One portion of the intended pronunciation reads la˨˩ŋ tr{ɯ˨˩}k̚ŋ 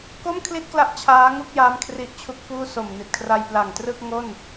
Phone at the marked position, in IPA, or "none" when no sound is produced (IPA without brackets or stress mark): ɯ˥˩